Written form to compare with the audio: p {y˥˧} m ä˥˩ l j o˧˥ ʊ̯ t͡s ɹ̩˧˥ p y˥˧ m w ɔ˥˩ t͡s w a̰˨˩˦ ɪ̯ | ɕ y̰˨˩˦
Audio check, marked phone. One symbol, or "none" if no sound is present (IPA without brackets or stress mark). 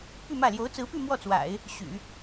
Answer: y˥˧